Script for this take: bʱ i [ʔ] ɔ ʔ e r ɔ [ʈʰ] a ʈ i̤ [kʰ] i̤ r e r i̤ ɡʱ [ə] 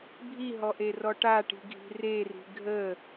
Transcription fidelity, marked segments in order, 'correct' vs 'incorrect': incorrect, incorrect, incorrect, correct

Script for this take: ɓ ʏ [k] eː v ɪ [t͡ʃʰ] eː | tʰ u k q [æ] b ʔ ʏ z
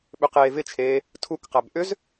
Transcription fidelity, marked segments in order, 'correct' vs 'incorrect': incorrect, correct, correct

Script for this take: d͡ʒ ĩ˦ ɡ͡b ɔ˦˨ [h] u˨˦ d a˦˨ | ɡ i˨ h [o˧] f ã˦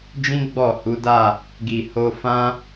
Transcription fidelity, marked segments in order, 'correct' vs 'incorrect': correct, correct

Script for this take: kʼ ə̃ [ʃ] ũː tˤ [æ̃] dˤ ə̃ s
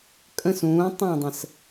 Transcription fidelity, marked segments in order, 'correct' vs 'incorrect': incorrect, correct

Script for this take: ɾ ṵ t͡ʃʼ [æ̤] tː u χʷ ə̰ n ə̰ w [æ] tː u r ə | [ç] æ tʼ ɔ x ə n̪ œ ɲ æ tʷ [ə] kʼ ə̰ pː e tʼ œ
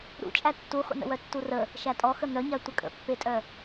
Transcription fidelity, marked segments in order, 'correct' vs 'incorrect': incorrect, incorrect, incorrect, correct

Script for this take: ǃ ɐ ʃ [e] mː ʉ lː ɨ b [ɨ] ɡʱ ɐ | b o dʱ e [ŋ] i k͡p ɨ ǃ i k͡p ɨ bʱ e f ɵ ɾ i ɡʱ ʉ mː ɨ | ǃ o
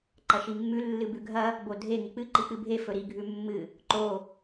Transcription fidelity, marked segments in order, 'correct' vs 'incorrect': incorrect, incorrect, correct

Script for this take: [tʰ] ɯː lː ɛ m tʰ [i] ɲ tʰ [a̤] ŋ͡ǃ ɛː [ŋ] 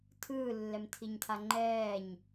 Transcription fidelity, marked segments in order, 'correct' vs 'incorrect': correct, correct, incorrect, incorrect

